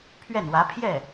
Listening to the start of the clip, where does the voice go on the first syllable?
falling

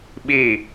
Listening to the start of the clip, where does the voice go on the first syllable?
falling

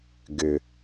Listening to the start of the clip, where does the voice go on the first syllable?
low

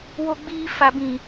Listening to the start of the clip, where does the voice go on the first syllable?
high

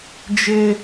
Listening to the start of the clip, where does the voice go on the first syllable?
high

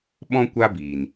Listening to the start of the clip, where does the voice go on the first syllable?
high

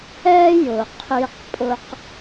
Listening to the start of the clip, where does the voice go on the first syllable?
high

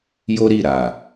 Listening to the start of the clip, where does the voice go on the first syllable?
high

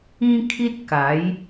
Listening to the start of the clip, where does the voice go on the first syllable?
high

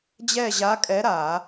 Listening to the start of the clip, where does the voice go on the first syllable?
falling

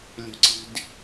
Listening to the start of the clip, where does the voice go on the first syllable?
high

